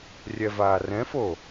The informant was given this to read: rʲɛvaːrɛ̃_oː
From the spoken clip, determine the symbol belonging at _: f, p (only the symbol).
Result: f